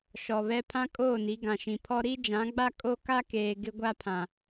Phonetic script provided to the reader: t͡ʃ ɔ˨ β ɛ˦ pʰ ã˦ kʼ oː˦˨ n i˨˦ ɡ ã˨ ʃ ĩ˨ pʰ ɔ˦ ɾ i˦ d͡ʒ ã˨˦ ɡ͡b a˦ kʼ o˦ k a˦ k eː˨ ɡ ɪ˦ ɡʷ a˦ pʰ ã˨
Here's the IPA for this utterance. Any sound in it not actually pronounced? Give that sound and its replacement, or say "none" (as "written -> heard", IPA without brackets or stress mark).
t͡ʃ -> ʃ